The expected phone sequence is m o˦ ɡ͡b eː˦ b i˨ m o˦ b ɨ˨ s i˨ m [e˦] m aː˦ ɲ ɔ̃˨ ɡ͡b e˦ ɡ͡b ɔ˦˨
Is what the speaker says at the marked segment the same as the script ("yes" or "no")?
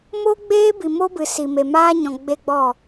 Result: no